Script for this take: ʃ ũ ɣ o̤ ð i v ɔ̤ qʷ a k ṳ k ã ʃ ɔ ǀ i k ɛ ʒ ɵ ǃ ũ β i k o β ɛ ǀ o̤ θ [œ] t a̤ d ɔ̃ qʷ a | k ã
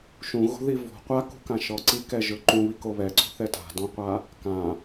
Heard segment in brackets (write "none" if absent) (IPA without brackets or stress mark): ɛ